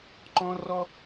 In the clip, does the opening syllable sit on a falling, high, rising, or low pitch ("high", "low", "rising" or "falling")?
high